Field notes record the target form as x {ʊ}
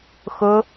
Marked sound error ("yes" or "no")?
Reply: no